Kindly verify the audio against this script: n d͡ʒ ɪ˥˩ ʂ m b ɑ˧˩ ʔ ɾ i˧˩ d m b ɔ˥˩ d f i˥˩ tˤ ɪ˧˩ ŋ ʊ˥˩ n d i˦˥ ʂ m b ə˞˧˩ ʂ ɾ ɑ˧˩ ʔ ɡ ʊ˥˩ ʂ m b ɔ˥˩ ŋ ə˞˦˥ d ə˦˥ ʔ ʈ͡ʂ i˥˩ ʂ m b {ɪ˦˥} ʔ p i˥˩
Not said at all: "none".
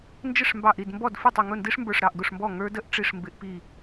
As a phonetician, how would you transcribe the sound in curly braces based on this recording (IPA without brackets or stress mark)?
ɪ˦˥